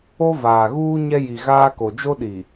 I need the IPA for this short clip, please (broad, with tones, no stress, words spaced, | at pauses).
o˦vaː˨ɣuː˦ ɲɛ˦ji˨ɣaː˦ko˨ d͡ʒo˦ɗi˨